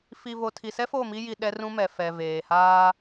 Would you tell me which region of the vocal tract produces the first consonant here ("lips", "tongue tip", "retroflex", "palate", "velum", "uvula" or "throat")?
lips